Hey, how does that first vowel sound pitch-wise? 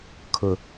low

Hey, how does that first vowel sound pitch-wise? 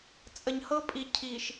low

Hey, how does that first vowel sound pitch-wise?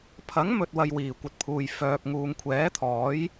rising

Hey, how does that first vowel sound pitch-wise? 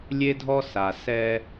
high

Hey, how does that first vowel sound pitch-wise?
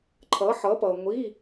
rising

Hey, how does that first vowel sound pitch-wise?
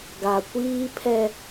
low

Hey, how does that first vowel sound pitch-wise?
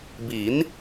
rising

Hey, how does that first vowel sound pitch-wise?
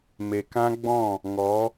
low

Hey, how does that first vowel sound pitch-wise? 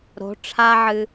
rising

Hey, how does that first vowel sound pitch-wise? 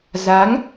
rising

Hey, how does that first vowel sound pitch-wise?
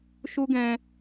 high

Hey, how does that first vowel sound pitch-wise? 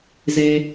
low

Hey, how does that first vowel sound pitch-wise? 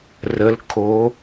rising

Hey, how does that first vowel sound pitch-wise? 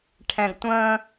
low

